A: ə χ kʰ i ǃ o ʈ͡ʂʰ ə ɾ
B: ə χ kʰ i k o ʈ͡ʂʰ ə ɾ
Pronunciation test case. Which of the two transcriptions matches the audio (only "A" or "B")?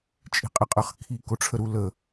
B